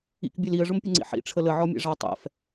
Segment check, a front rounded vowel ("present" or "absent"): absent